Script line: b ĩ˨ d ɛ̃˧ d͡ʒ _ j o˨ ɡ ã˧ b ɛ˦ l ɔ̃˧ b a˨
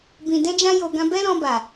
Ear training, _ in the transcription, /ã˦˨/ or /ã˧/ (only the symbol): ã˧